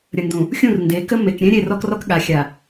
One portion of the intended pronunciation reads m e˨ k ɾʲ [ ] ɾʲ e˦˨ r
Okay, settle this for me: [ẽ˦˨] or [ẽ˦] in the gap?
ẽ˦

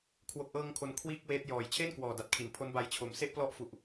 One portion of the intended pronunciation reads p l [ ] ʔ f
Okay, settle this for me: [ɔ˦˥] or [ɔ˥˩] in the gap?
ɔ˦˥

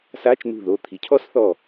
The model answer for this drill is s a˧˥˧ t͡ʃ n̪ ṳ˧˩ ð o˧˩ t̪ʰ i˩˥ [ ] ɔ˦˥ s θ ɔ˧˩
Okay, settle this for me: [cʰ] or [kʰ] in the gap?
cʰ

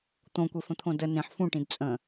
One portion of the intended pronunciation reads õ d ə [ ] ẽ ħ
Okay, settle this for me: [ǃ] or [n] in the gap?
n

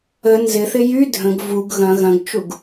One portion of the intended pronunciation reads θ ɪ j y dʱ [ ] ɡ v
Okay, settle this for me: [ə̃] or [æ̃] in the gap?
ə̃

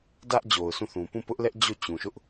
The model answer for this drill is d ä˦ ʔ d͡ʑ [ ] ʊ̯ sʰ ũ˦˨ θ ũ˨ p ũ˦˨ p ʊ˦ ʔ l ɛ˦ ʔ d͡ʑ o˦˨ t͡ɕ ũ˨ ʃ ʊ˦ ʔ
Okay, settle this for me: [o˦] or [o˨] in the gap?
o˨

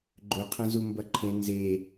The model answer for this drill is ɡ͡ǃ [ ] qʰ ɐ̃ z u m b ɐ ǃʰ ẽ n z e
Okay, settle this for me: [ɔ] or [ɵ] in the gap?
ɵ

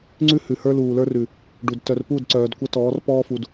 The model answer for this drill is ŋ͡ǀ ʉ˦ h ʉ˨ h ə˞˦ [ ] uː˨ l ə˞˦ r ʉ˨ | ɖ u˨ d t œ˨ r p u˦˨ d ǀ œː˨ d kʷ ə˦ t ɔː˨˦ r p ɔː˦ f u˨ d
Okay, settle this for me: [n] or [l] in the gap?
l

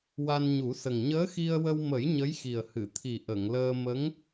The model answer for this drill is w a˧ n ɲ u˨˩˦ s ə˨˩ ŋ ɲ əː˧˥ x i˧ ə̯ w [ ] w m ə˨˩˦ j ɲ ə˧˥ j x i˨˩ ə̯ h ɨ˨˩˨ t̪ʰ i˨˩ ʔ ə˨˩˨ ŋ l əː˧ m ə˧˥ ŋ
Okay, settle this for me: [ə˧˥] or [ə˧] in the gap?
ə˧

